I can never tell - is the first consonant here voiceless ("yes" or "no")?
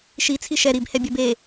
yes